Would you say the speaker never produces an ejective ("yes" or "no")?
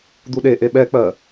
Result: yes